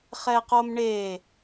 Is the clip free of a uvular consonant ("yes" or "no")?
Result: no